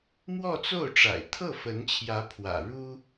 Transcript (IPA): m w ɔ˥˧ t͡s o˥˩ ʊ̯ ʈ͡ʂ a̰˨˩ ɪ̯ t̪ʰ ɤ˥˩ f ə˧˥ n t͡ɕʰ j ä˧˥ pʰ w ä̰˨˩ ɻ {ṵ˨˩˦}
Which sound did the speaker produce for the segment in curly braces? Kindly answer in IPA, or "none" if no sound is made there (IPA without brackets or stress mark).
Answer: u˥